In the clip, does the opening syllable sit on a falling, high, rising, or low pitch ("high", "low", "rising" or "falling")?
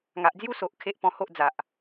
low